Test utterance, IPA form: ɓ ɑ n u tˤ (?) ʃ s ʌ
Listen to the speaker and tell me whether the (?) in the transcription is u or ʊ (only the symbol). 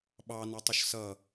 ʊ